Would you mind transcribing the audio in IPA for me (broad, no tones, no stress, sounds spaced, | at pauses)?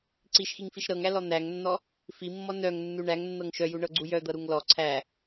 ǀ i ʃ x i ŋ f i ʃ ɾ ɤ ŋ æ l ɔ n̪ æ ŋ nː ɔ | f i mː ɔ n œ ŋ nː u ɳ æ ŋ nː ɤ ŋ ʃ œ j u ɳ ɤ ɡ͡ǀ u j œ d̪ ɤ ɾ u ŋ l ɔ ǀʰ æ